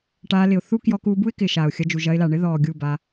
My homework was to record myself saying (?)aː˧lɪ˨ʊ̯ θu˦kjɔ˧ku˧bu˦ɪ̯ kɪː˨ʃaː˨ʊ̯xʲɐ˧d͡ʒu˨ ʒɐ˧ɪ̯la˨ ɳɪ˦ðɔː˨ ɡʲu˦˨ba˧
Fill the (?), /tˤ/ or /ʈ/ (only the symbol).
ʈ